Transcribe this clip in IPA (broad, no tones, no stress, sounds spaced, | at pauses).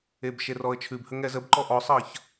e b ʃ e r ɔ ə̯ t͡ʃʰ ʉ b h ə ŋ ɛ z ə b ǃ ɔ ʔ ɔ sˤ ʌː ç